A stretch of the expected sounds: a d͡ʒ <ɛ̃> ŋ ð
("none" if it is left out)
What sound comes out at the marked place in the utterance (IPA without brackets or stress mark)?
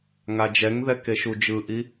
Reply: ɛ